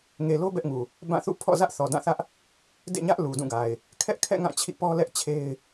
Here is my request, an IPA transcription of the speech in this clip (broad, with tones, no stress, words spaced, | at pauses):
ŋe˨lo˦ bɛ˦ʔŋu˨ | bã˦˨ θṵ˦˨pʰɔ̰˦˨zä˦ʔ θɔ˨dã˦˨θä˦ʔ | dḛ˦˨ɲä˦ʔ lu˨dũ˦˨ɡa˨ɪ̯ | kʰɛ˦ʔkʰɛ̰˦˨ ŋã˦˨t͡ɕʰḭ˦˨pɔ˦lɛ˦ʔ t͡ɕʰe˦ɪ̯